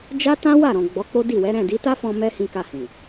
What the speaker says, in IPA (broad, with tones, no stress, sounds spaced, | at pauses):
d͡ʒ a˦ t ã˦ w a˦˨ ɾ ɔ̃˨ ɡ͡b ɔ˨˦ k͡p o˦ d i˦˨ w ɛ˨˦ ɾ ɛ̃˦˨ d i˨˦ t a˦ f ɔ̃˧ m ɛ˦ h ĩ˧ k a˧ h ĩ˨